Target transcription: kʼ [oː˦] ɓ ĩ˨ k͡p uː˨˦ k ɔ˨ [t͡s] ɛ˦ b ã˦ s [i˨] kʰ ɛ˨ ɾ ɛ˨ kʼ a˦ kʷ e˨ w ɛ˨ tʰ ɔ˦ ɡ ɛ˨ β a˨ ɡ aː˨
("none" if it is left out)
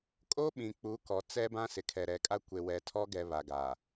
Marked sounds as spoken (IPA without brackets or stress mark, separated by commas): oː˦, t͡s, ɪ˨